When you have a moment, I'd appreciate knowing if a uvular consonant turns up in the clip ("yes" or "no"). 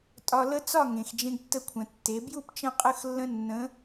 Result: yes